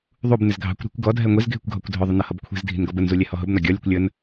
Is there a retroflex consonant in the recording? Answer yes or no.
no